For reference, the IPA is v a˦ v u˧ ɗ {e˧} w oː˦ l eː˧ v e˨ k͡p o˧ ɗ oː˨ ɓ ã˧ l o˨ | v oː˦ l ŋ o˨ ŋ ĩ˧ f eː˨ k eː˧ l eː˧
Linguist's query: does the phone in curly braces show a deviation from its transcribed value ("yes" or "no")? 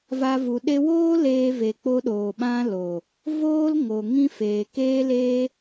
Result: no